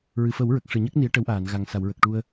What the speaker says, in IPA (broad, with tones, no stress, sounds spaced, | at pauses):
ɹ ɨ˨˩˨ f ə˨˩˦ w ɹ ə˨˩ k̚ ʂ ɨ˨˩˨ ɲ ə˦˥ k̚ n i˧˥ ə̯ ʈ ə˧˥ w ʔ aː˨˩˨ n ɣ a˨˩ ŋ s a˨˩˨ w ɹ ə˨˩ k̚ ʈ u˧ ə̯